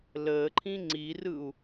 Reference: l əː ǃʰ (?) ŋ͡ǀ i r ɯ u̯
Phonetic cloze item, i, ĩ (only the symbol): ĩ